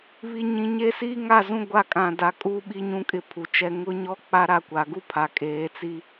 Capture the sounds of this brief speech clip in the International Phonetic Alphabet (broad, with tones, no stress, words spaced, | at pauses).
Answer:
βi˨ɲĩ˨ ɲe˦ siː˦ŋa˦˨zũ˦ ɡʷa˦˨kʼã˨da˨˦ kʼuː˦ɓi˦ɲũ˦kʼɪ˦˨ pʰu˨t͡ʃɛ˦ ŋʊ˦ɲɔ˦k͡pa˦ ɾa˦kʷa˨˦ ɡu˦pʰa˨kʼeː˨˦t͡si˦